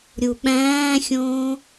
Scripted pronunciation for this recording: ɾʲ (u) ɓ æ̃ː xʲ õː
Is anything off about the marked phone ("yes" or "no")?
no